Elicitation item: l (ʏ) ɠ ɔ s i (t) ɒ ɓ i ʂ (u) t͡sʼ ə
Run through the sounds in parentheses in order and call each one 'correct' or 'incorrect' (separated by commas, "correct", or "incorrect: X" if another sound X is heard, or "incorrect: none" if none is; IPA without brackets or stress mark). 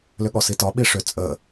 correct, correct, incorrect: ʏ